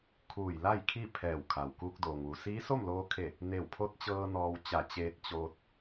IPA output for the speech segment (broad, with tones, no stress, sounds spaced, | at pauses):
kʰ uː˧˩ j l a˥˨ j kʰ i˥˨ pʰ ɛː˧˩ w kʰ a˩ w k uː˧ k̚ d oː˩ ŋ ʋ u˩ s iː˧˥ s o˥˨ m l oː˧ kʰ e˧˩ | n e˧˩ w pʰ o˧˥ t̚ t͡ɕ ɤː˧ n ɔː˧ w t͡ɕ a˧˩ t͡ɕ eː˧ t̚ t͡ɕ oː˧ t̚